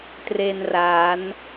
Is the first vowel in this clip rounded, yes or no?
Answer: no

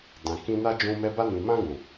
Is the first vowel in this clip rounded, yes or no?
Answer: no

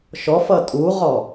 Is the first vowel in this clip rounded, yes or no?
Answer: yes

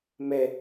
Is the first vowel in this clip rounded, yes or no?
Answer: no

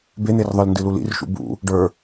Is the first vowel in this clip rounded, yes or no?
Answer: no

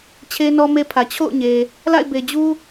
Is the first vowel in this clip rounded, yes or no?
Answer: no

